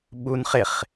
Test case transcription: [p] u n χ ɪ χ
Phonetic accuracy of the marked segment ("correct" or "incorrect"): incorrect